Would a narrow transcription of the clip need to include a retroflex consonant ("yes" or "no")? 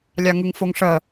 yes